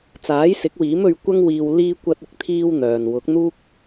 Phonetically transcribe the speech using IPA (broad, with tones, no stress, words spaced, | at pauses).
t͡saː˨˥jsɪ˨˥k̚wiː˨˥m ɵ˧ɥ kʷɐ˥ŋwiː˧w liː˧kʷɐ˧t̚ɪ˧k̚ t̪ʰiː˥wn̪œː˨n wʊ˨˥k̚n̪uː˥k̚